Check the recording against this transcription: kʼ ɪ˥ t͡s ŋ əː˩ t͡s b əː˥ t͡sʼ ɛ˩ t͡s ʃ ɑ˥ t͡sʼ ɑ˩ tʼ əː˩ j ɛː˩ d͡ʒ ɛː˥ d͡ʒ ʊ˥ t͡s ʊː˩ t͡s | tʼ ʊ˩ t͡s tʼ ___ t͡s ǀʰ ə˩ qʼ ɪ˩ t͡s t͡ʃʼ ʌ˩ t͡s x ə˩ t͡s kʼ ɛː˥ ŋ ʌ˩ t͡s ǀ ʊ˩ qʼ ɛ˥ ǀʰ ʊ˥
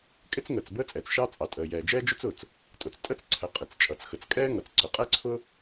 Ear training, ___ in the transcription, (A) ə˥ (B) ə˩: A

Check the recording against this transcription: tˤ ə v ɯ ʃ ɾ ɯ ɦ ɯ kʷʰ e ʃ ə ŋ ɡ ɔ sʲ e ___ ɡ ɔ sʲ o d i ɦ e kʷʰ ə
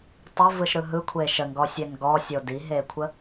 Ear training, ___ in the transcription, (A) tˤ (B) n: B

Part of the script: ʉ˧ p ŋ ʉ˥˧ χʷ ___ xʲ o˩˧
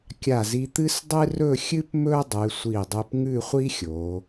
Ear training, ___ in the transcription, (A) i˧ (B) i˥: B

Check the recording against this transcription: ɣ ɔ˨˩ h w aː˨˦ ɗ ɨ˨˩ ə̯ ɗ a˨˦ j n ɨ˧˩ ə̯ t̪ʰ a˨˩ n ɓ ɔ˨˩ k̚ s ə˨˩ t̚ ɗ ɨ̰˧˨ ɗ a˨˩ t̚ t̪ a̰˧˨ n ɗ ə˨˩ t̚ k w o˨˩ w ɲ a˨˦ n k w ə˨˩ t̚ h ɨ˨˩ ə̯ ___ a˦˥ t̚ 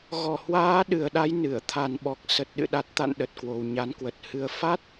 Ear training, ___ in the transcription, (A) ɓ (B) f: B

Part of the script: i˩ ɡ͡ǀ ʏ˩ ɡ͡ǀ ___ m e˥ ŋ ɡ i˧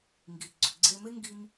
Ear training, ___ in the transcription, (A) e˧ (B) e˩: A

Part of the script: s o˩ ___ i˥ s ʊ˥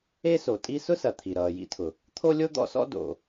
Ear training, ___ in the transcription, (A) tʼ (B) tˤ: A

